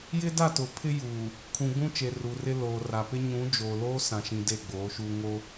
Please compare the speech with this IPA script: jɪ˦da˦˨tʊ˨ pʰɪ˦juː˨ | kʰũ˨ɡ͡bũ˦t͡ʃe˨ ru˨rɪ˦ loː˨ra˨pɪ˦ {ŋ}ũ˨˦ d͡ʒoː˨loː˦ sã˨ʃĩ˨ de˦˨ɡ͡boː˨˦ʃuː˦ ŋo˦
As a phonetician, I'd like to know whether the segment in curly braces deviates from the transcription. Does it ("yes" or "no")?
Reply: yes